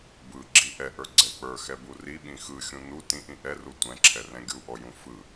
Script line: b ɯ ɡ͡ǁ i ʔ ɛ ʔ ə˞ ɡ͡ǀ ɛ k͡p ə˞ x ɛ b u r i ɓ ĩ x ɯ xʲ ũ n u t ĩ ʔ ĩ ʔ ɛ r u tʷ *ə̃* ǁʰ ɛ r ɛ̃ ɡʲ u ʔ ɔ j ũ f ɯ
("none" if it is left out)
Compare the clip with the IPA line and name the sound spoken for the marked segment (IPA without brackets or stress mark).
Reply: ɛ̃